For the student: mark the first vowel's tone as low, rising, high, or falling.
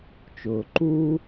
low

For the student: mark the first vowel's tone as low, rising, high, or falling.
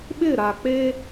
falling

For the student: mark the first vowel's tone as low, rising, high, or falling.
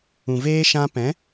low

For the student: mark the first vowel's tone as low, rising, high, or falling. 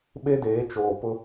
high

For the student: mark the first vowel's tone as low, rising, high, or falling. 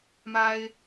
high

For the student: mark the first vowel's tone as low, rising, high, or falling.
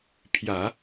low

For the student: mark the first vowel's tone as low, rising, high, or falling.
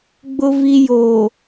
low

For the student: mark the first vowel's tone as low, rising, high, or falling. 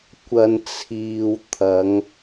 low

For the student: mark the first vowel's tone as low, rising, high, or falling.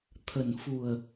low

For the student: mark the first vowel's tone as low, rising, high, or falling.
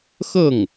falling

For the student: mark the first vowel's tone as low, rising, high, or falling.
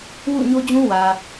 falling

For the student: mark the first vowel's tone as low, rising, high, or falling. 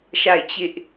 falling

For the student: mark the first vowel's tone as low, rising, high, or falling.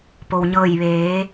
low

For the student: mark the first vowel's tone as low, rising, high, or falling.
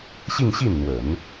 falling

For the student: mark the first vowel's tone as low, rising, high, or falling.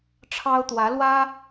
high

